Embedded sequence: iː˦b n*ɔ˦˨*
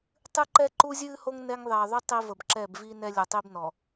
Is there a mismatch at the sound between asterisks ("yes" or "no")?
yes